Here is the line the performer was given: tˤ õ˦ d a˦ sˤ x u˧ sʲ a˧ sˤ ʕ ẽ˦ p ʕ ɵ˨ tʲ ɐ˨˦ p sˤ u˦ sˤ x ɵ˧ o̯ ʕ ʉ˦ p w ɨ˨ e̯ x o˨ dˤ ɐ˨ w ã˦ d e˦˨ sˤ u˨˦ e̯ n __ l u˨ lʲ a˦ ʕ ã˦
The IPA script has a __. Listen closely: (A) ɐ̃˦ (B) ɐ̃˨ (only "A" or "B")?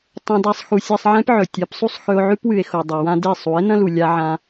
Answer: A